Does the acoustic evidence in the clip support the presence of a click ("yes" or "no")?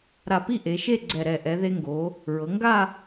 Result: yes